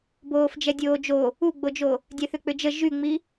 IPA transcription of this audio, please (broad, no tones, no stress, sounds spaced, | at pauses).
b oː f d͡ʒ ɛ dʲ oː d͡ʒ o | u ɡ͡b o d͡ʒ o | dʲ ɛ θ ʏ k͡p ʏ d͡ʒ ə ʒ y ŋ͡m i